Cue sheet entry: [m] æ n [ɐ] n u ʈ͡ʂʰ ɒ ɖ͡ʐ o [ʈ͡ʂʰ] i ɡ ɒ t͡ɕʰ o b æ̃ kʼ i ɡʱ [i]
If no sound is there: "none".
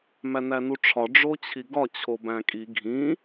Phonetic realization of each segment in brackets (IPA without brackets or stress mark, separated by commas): m, æ, t͡ɕʰ, ĩ